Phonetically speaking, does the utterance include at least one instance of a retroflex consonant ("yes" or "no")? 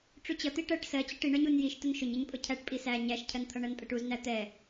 yes